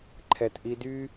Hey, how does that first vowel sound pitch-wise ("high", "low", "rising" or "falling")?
low